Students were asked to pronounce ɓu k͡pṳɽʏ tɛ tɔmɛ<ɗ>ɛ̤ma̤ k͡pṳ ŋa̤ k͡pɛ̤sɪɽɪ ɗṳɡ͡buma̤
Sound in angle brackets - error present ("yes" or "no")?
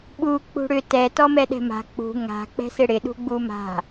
no